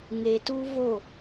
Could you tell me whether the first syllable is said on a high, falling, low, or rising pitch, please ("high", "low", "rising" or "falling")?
low